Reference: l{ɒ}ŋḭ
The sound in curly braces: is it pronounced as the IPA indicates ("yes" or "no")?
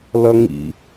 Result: no